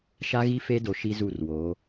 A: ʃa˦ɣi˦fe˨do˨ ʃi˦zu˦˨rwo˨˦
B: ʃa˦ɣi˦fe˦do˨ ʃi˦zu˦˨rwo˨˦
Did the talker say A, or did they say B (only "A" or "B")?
B